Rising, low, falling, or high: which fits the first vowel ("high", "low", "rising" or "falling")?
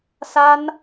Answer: high